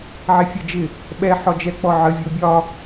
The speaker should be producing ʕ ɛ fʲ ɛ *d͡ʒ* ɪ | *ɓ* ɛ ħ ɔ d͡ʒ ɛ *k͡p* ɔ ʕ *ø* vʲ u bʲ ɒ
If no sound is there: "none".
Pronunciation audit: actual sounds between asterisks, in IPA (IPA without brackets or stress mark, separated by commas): d͡ʒ, ɓ, k͡p, ə